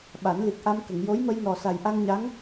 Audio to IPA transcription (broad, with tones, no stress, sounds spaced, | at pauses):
ɓ a˨˩˦ n l i˨˩ k̚ ʔ a˧ m k ə˨˩˨ ŋ j o˧˥ j m ə˧ j n ɔ˨˩ s a˨˩ j ʔ a˧ ŋ ɲ a˧˥ ŋ